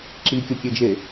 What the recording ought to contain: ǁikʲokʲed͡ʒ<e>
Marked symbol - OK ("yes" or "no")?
yes